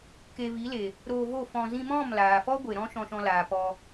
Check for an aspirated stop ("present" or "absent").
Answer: absent